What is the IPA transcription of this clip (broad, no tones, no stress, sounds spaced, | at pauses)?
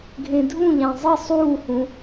ɡʱ ẽ dʱ ũ ʎ æ̃ zˤ i sˤ uː h ũ